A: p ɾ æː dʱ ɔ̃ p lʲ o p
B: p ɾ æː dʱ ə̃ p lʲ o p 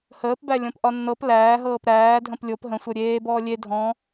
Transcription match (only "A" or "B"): B